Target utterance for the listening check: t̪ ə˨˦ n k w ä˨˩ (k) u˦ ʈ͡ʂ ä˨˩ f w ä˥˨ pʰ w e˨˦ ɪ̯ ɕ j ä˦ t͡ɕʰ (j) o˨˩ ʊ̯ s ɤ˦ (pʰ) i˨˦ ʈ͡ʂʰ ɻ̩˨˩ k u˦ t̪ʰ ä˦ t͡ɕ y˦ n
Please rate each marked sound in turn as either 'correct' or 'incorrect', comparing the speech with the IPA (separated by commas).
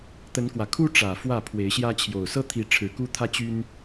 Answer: incorrect, correct, incorrect